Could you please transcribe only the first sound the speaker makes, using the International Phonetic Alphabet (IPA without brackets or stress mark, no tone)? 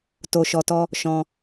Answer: t